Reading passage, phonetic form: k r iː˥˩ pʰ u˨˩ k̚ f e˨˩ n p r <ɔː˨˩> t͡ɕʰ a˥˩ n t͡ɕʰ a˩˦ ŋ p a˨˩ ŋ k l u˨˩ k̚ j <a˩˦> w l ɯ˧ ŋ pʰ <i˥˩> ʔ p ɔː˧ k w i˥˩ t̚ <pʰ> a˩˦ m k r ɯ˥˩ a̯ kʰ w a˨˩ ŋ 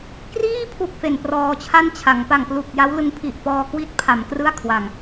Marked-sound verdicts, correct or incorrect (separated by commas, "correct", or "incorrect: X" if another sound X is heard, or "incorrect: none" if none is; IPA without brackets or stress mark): incorrect: ɔː˧, incorrect: a˦˥, incorrect: i˨˩, correct